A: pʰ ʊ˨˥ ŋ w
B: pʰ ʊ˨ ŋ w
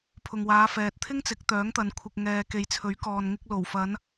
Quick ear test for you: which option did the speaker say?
B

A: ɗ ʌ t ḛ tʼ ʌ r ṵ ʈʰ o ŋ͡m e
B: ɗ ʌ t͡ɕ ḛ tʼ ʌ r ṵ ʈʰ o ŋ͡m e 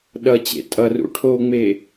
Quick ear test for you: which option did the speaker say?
B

